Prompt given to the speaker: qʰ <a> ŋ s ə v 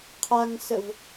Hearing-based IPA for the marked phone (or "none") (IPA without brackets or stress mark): a